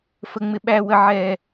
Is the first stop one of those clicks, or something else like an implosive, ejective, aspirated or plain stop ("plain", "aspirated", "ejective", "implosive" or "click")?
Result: implosive